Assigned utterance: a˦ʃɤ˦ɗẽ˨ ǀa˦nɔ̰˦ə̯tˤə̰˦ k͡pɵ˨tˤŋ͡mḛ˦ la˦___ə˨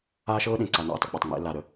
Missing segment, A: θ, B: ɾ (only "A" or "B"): B